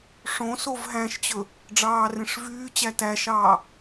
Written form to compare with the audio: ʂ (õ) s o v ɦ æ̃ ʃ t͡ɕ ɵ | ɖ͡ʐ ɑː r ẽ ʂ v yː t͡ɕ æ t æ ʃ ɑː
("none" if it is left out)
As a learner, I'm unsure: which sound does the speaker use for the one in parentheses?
õ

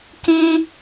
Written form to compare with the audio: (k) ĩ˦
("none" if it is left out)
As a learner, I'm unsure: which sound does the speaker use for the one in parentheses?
k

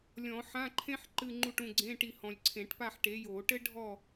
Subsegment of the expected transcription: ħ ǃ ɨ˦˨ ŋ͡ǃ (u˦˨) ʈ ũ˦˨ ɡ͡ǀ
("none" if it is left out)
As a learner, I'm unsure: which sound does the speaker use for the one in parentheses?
u˦˨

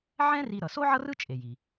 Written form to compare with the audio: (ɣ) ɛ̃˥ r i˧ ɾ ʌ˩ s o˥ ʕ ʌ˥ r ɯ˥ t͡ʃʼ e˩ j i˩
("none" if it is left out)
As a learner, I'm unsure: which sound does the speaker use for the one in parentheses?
ʕ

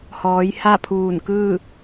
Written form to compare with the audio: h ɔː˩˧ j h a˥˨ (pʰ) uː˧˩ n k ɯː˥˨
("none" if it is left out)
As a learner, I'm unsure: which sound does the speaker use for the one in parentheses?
pʰ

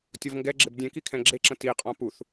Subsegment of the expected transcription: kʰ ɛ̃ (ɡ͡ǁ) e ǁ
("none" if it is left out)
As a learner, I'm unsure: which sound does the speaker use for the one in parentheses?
ɡ͡ǁ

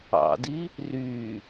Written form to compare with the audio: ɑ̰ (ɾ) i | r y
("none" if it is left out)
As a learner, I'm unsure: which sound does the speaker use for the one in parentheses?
d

